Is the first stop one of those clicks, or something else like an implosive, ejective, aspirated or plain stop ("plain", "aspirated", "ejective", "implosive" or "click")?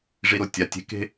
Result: plain